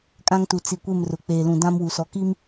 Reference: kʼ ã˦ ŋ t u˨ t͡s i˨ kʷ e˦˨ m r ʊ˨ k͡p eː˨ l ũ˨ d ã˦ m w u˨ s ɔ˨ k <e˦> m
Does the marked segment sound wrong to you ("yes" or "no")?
yes